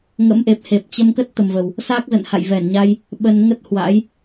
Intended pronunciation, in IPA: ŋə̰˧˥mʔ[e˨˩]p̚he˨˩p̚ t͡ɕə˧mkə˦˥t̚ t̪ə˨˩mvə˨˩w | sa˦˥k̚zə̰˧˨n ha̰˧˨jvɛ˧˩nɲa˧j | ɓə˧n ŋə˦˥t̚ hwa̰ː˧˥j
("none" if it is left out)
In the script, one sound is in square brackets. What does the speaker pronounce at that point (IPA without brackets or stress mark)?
e˨˩